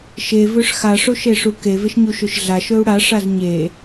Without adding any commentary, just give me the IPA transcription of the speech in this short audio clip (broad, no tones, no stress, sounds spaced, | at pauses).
ʃ e v ɵ ʂ x a ʂ o ʃ e ʂ u k e v e ʃ ɲ u ʃ ɵ ʃ ɮ a ʃ ɵ u̯ ɽ a ʂ a z ɲ e